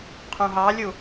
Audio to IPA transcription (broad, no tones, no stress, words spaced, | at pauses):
qʰũɦɑlʲu